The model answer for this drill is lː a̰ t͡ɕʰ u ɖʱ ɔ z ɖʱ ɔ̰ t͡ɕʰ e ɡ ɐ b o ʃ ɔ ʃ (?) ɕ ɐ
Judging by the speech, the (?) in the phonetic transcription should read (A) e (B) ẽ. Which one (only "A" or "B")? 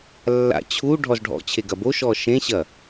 B